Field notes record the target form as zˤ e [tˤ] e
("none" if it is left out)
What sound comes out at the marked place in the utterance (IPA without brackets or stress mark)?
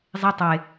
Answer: tˤ